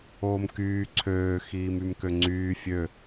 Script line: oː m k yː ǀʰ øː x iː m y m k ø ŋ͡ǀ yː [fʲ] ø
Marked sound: correct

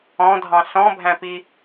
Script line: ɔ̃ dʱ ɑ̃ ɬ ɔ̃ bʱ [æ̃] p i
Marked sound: correct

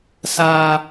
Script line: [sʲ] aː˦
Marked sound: incorrect: s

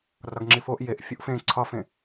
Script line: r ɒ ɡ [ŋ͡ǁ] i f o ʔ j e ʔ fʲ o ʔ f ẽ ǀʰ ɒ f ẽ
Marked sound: correct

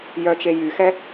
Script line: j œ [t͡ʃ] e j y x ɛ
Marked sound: correct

